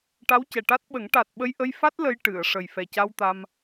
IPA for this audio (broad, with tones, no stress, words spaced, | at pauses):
ʈa˧˥wcɛ˨˩ʈa˦˥t̚ɓə˨˩˦ŋ ʈa˨˩t̚ ɓə˧jʔə˧j fa˦˥t̚ lə˧j ʈɨ˨˩˨ə̯ ʂə˨˩jfɛ˨˩ca˧w t̪a˧m